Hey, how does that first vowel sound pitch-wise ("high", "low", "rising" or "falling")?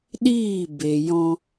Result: falling